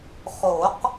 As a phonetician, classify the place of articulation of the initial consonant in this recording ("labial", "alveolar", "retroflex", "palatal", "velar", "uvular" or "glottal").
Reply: uvular